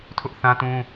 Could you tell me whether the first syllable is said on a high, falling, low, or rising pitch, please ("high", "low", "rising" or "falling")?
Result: high